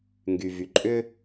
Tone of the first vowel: low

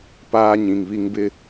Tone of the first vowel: high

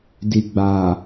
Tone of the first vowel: low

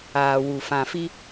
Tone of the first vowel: low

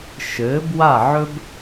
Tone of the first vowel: rising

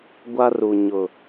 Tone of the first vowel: high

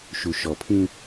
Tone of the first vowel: low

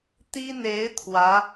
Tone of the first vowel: high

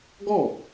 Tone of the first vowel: falling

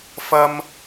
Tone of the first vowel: high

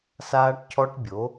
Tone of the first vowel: high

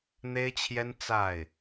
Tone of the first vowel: high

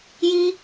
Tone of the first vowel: high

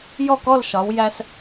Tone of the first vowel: falling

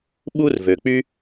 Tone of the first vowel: high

